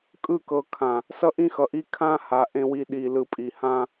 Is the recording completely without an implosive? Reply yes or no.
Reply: no